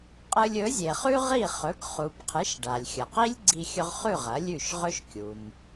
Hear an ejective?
yes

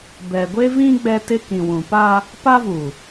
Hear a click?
no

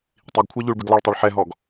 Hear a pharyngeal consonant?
yes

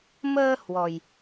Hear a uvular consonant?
no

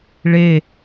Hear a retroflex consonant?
yes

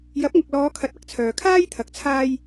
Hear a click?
no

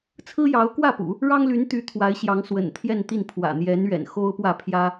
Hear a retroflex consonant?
yes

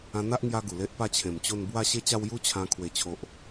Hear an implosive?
no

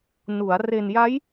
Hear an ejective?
no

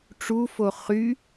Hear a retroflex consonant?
yes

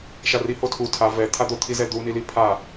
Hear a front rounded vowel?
no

